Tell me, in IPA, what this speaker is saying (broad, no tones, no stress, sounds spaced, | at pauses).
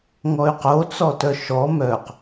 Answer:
ŋ ɔ y̯ q o t͡s ɔ t œ ʃ ɔ m œ q